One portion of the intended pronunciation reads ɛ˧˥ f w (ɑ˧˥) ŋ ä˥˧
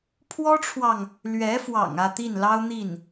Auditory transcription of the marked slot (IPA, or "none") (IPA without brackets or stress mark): ɑ̰˨˩